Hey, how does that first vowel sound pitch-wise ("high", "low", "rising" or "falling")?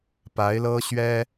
rising